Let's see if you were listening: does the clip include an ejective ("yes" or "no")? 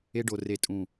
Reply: yes